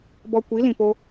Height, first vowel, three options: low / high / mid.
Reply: mid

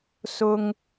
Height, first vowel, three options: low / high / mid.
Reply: high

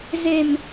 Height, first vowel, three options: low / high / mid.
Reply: mid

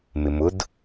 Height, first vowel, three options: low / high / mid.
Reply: high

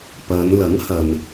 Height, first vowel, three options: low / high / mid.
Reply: low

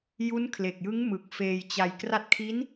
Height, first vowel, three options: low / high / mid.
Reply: high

